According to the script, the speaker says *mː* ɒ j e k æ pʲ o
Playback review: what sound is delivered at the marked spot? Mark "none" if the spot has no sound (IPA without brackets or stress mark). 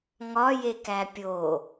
ŋ